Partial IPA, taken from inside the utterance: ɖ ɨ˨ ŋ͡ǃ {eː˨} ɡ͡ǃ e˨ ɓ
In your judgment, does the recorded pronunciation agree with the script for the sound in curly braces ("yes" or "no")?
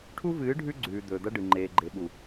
yes